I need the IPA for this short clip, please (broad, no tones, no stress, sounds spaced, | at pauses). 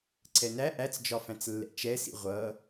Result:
ǀʰ ɛ n æ ʔ æ t͡s d͡ʒ ɒ f æ̃ t͡s lː ɛ̰ t͡ʃ ɛ s ḭ ʁʷ ʌ